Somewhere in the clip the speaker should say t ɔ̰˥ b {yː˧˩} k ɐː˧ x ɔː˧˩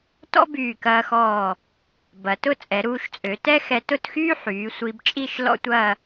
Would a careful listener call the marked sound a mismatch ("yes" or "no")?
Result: no